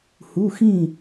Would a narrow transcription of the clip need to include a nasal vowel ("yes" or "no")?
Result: yes